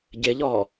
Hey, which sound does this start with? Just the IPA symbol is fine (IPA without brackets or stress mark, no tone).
ɟ